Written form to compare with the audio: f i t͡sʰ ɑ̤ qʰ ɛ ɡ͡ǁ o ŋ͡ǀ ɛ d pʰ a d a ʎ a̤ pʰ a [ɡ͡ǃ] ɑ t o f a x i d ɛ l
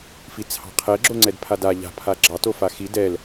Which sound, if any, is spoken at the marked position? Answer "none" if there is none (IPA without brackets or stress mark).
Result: ɡ͡ǁ